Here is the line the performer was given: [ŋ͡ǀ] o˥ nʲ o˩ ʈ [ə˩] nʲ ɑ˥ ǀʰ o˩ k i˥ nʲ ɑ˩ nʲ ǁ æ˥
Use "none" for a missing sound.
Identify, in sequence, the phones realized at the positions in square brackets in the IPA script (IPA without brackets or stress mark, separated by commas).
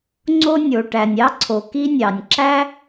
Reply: ŋ͡ǀ, æ˩